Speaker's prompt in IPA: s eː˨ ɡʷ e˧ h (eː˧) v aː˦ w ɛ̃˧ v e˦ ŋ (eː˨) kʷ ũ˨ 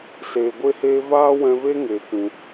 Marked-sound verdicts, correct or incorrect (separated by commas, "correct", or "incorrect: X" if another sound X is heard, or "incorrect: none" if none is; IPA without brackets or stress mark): correct, correct